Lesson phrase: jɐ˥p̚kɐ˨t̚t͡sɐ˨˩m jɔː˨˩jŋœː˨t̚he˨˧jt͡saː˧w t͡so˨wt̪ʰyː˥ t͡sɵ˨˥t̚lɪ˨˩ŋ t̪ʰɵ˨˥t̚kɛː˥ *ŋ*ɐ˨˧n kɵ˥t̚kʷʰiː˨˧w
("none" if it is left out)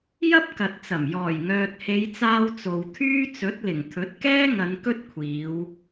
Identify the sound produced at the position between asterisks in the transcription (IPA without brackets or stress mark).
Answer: ŋ